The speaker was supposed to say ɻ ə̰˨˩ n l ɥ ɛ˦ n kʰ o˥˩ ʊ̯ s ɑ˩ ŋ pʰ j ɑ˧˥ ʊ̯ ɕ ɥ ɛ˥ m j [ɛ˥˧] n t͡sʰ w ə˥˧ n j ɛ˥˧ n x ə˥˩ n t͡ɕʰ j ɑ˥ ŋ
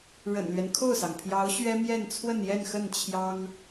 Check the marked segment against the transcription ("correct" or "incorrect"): correct